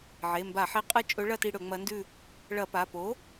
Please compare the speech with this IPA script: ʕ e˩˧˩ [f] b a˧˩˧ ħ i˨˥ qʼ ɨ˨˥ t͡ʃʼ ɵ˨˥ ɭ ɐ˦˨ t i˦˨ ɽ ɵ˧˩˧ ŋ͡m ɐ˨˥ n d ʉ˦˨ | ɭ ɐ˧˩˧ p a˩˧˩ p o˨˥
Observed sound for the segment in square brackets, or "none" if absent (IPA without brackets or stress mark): m